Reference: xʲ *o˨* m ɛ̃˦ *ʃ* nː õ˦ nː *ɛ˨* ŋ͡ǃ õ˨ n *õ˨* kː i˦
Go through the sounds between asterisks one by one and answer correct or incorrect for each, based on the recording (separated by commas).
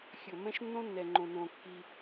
incorrect, correct, correct, correct